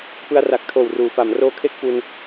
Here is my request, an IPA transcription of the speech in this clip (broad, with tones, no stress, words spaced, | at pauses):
pɯ˧a̯ra˨˩k̚tʰoː˨˩w ruː˩˦fa˩˦m roː˦˥kʰe˥˩k̚fu˧n